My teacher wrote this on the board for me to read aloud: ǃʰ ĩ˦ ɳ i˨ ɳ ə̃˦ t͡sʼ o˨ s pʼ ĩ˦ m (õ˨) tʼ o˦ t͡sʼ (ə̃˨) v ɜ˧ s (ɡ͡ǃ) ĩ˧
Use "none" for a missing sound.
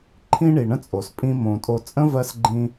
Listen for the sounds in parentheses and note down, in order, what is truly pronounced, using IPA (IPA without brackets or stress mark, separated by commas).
õ˧, ə̃˦, ɡ͡ǃ